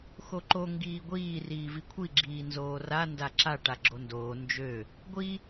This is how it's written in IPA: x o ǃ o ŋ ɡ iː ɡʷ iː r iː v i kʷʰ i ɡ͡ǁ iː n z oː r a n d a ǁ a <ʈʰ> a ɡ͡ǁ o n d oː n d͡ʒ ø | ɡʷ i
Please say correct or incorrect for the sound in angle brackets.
incorrect